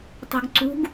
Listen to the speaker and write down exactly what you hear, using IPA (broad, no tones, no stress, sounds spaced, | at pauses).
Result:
tˤ o̤ ɡ ǀ ṳ ɡ